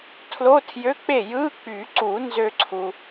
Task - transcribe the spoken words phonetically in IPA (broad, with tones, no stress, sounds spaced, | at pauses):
tʰ l o˧˥˧ tʰ j ø˧˥˧ k͡p e˥˩ j ɯ˧˥˧ k͡p y˨˩˦ ǀ u˨˩˦ n z ø˥˧ ǀʰ u˩